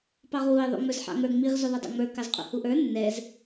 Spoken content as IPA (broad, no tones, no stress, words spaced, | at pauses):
pɑʁwuɪ̯ ðˤṵŋ͡mə˞zħɑ̰ŋə˞ ŋ͡miʁ zʉðˤʉdˤa̰ŋ͡mə˞ kɑzqʼṵhuʔə˞ nːɛz